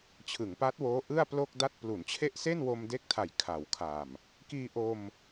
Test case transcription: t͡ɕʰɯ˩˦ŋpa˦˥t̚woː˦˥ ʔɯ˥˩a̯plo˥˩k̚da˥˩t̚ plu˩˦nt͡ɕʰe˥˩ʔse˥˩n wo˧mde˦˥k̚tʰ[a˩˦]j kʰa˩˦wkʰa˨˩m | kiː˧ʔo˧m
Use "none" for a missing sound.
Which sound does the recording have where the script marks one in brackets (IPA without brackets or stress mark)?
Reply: a˩˦